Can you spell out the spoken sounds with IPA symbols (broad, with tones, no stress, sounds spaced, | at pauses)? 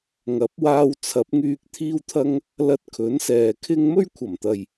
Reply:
ŋ ɐ˨˥ p̚ w aː˧ w t͡sʰ ɐ˨˥ p̚ ŋ yː˧ k̚ t̪ʰ iː˥ w t̪ʰ ɐ˥ ŋ | l ɐ˧ t̚ kʰ ɵ˨˥ n s ɛː˨ kʰ ɪ˥ ŋ m ɵ˥ ɥ kʷʰ ɐ˨˩ m t̪ ɐ˨ j